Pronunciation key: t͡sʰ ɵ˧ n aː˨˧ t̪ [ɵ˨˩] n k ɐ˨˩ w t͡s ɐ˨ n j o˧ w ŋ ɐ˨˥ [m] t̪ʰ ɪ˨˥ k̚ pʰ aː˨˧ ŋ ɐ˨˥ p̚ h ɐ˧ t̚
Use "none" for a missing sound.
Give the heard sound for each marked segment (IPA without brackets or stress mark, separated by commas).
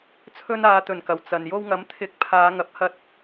ɵ˨˩, m